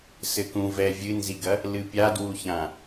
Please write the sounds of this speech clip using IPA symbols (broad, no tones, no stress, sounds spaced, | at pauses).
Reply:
s ɘ k ũ v ɛ vʲ ɨ n z i ɡ ɐ | l ɨ pʲ a d w u ç ã